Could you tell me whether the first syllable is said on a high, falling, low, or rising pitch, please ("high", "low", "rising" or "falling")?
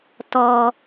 low